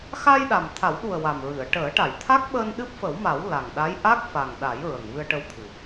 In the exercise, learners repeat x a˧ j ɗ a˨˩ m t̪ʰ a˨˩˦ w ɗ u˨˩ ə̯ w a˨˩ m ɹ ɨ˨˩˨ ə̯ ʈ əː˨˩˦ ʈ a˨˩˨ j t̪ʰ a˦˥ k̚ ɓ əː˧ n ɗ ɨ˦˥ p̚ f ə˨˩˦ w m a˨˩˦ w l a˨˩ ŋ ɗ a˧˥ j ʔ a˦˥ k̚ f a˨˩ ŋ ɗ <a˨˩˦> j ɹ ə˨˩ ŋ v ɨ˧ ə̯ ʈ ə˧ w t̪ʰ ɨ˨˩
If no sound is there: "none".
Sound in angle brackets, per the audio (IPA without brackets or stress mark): a˨˩˦